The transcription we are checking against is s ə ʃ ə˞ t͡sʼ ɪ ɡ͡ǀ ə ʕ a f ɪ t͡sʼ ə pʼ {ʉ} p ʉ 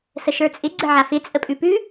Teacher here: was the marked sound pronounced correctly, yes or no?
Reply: yes